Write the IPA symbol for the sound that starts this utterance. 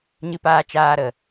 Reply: ɲ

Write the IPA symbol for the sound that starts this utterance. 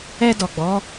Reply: ɛ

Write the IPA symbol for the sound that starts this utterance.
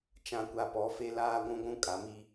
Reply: t͡ʃ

